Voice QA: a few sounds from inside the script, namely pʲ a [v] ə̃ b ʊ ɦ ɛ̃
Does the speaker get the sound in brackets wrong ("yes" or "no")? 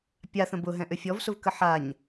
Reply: yes